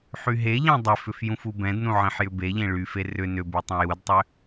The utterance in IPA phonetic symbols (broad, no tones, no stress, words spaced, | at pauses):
ħyɦeʎɛ̃ dˤʏfʏf jũfubɛ̃dnũ ʕẽħjʏbeʎẽ ɭyfe rʏ nʏby tˤũjudtˤʏ